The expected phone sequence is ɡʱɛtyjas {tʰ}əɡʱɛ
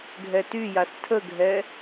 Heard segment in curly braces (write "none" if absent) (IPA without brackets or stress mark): tʰ